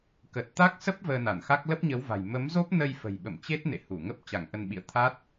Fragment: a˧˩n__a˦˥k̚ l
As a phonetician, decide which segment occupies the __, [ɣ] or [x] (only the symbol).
x